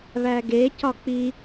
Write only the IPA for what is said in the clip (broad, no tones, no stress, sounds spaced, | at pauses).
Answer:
β æ ɡ e c ɒ k͡p i